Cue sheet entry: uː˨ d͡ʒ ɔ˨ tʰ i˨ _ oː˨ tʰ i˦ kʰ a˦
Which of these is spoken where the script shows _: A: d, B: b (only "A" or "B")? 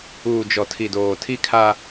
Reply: A